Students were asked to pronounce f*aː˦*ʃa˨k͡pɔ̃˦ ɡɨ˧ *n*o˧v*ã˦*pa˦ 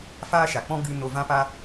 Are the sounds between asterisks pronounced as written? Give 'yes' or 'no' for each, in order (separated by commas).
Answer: yes, yes, yes